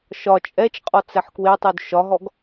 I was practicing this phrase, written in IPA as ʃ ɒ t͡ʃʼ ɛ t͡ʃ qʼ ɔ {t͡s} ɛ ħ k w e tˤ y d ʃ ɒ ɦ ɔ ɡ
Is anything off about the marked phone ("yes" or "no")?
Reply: no